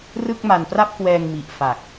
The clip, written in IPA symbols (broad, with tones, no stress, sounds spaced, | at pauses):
r ɯ˥˩ k̚ m a˧ n p r a˥˩ p̚ k w ɛː˧ ŋ m i˨˩ ʔ f a˨˩ k̚